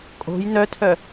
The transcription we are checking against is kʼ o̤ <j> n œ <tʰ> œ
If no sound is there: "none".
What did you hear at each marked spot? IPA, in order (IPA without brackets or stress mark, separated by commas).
j, tʰ